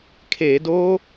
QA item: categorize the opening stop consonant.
aspirated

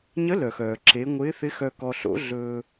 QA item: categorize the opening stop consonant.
click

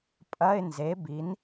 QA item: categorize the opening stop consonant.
ejective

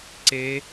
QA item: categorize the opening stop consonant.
click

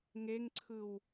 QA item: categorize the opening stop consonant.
click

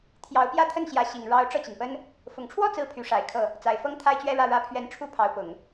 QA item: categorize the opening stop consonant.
aspirated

